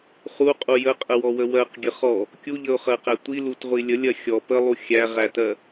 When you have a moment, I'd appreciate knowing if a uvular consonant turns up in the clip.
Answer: yes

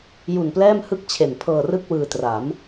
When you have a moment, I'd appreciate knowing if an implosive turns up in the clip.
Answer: no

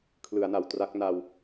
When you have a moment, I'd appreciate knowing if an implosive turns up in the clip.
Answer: no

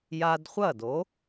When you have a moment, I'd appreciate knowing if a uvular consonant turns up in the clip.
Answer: yes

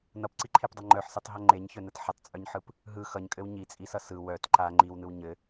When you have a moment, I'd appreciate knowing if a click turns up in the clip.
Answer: yes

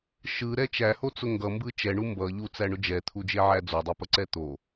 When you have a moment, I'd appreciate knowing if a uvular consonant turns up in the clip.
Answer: no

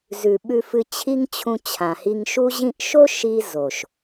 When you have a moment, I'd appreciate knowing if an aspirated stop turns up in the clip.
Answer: yes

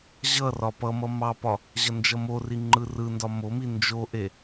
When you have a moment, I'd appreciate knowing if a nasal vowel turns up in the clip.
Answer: no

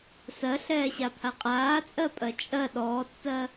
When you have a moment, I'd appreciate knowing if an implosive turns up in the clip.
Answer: yes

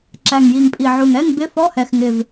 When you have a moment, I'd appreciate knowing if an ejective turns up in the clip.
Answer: yes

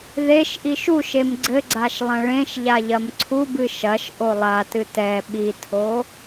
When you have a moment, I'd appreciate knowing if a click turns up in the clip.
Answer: yes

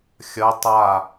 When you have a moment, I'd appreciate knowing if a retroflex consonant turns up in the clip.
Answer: no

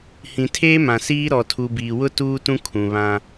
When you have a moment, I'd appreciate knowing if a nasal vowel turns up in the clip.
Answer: yes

